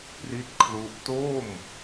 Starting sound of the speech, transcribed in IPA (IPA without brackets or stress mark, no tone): p